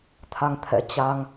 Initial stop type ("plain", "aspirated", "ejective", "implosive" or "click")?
aspirated